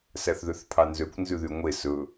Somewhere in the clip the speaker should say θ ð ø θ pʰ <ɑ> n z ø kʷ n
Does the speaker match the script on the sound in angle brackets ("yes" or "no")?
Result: yes